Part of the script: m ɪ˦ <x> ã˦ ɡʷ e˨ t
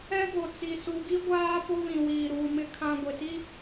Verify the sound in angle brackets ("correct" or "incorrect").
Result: incorrect